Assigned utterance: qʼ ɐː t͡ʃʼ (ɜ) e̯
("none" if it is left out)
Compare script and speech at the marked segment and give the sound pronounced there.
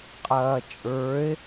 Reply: ə˞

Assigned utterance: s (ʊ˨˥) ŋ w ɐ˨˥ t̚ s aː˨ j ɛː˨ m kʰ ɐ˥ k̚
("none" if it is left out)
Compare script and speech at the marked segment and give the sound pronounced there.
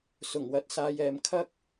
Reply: ʊ˨˩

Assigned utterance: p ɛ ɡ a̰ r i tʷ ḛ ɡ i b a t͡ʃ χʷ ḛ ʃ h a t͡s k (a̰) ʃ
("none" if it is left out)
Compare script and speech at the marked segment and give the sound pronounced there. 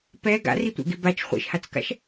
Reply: a̰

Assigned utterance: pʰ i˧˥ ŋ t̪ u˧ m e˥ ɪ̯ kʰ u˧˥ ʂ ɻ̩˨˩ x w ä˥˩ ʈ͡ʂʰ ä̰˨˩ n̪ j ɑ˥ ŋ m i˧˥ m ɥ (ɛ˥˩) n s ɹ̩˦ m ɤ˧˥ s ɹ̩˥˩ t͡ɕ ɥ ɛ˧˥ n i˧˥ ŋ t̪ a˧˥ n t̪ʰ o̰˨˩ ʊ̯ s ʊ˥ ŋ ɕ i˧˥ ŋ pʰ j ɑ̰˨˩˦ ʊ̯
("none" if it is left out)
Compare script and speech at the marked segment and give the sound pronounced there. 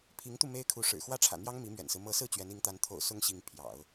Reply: ɛ̰˨˩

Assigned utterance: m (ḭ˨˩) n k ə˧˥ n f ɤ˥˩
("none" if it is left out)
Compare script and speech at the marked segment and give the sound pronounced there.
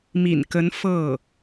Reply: ḭ˨˩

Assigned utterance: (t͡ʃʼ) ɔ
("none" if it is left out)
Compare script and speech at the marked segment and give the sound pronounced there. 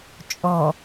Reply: t͡ʃʼ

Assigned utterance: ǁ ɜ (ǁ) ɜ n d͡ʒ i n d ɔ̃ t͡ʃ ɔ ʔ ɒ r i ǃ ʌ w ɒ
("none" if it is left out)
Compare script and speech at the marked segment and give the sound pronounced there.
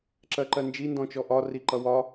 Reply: ǃ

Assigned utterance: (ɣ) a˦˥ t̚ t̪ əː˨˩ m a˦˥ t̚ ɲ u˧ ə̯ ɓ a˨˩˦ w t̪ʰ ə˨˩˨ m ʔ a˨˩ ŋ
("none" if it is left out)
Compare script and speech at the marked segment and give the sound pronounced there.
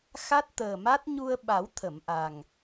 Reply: x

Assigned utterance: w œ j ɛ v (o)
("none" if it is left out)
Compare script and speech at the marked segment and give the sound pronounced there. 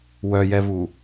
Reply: u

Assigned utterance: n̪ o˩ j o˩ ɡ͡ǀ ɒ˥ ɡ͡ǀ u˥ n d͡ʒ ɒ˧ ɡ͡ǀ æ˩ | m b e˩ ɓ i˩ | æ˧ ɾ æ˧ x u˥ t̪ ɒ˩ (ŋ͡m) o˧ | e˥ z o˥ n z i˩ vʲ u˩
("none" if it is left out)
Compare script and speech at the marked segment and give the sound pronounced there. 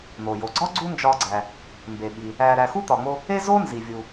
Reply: ŋ͡m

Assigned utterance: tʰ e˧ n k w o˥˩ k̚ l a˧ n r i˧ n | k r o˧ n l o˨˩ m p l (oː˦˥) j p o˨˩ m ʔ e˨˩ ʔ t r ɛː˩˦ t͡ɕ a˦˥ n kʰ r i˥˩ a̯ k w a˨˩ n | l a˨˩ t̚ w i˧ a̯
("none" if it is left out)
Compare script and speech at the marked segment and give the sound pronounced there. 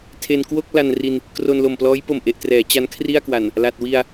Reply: ɔː˦˥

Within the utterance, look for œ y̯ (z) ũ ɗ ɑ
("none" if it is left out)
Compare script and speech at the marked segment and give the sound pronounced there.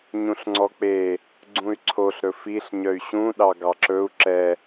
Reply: ɕ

